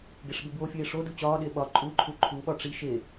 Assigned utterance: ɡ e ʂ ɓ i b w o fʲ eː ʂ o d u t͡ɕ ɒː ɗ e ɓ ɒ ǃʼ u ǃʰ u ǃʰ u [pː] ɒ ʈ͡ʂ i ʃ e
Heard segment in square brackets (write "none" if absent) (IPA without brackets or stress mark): ɓ